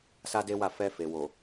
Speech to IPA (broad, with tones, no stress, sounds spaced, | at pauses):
s a˦ d e˦ w a˦˨ f ɛ˧ f e˨ w o˨